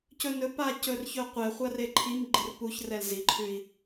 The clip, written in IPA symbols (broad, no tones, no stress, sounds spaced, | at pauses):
c ɵ n ɵ p a c ɵ r ç ɵ qʷ ɛ χʷ a r e ǃʰ i m ɡ͡ǃ ɪ r p u ç r ɛ l z i ǃʰ ʉ i̯